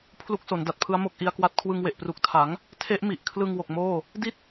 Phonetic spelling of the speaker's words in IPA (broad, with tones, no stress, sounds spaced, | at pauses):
pʰ l u˦˥ k̚ s o˩˦ n d a˨˩ t̚ pʰ ɯ˦˥ a̯ m o˥˩ k̚ ʔ i˦˥ a̯ k w a˦˥ t̚ kʰ w ɯ˧ ŋ w e˨˩ ʔ p r u˨˩ k̚ tʰ a˩˦ ŋ | tʰ e˦˥ ʔ m i˨˩ ʔ kʰ l ɯ˧ ŋ w o˨˩ k̚ m oː˥˩ | d i˥˩ t̚